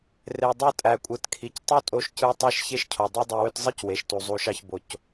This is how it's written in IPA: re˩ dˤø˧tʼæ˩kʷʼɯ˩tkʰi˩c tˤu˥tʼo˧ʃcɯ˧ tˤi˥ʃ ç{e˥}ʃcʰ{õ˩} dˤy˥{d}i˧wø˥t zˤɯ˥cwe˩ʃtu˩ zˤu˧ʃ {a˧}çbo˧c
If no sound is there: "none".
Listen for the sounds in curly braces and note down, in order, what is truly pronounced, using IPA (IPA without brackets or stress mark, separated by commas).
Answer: e˥, o˩, dˤ, ɑ˧